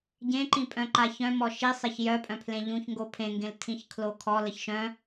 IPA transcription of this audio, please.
ɟ ẽ ǃ ĩ pʼ œ̃ ǃ a ç œ̃ m ɔ ʃ i sˤ e ç j œ pʼ œ̃ pʰ l ẽ ʎ ũ ç ŋ ɡ o pʰ ẽ ŋ ɡ ẽ l tʰ ĩ ç kʰ l o kʰ ɔ l ə ç ʃ œ̃

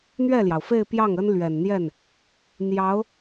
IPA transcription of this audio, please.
n̪ ɥ ɛ˥˩ l j ɑ˩ ʊ̯ f e˥˧ ɪ̯ p j ɑ˥˩ ŋ ə˥ n l ɥ ɛ˨˩ n n̪ j ɛ˥˩ n | n̪ j ɑ˧˥ ʊ̯

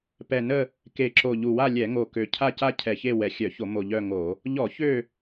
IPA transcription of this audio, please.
p ɛ˨˩ n ə˦˨ | k e˨˩ ǁ o˨˩ ʎ u˨˩ w a˦˨ lʲ ɛ˧˩˧ ŋ o˨˩ k ø˨˩ cʰ a˦˨ c a˦˨ cʰ ɛ˨˩ ç e˦˨ w ɛ˨˩ xʲ œ˧˩˧ ç o˧˩˧ m o˨˩ ʎ œ˦˨ ŋ o˧˩˧ | ʎ ɔ˧˩˧ ç ø˦˨

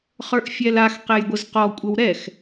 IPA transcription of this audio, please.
χ ə˞ ʔ fʲ ɛ l a x q ɛ j ɡʷ ə z q ɔ kʷʼ ə w ɾ ɛ x

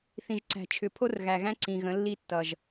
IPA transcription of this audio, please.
θ ĩ˨ ʒ ǀ æ̤˨ t͡ʃʰ ʏ˨ pʰ o˦ r ɣ æ˨ ɣ æ̃˦ ǀ ĩ˨ ɣ ə̃˨˦ lː i˦ tː ʌ˨ ʒ

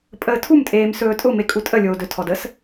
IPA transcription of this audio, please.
pʼ əː tʰ u m tʼ eː m s ɵː tʼ ʊ m e kʼ u tʼ ə lʲ oː d ɵ tʰ ɔ d ə s

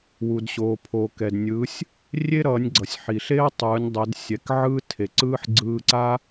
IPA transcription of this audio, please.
w u˩ d ɕ oː˩ pʰ oː˩ k ɛ˩ d nʲ ɯː˩˧ sʲ | rʲ e˥ ɾ ʌː˩˧ nʲ ɡ͡ǀ ʌ˩ sʲ ħ i˩ ɬ e˥ ɐ̯ tˤ ɯː˩˧ nʲ dˤ ɛ˩˧ d sʲ ɛ˩˧ k ʕ ɯː˥ tʰ e˩ ǀ ɯː˥ ħ ɡ͡ǀ ɯː˧ ǀ a˥

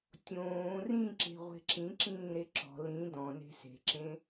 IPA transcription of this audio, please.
tʲ õː r ĩ ǁ e̤ ʁʷ e̤ ǁ ĩ ǁ ĩː ɾ e ǁ ɔ̤ l ĩ d ɔ̃ n e̤ s e̤ ǁ ẽ

